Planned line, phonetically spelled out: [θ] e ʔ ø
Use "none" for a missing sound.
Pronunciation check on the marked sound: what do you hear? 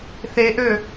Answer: θ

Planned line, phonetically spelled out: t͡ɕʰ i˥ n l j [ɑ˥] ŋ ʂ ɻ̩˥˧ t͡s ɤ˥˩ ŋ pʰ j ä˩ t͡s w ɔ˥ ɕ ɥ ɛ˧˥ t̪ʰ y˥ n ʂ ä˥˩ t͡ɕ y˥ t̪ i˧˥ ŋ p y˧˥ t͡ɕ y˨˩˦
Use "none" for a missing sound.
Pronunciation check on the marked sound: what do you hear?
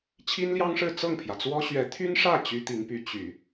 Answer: ɑ˥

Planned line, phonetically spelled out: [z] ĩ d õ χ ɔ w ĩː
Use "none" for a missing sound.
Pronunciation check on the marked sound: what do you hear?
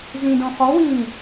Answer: z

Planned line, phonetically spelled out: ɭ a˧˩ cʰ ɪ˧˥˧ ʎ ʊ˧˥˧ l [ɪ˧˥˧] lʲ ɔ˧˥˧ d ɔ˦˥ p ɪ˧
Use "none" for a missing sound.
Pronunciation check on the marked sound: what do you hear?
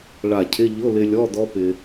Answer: ɪ˧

